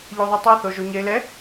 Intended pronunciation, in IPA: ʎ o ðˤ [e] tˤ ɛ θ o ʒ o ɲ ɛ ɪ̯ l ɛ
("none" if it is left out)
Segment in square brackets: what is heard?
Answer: e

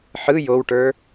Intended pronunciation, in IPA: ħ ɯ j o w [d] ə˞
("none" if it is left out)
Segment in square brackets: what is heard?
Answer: ʈ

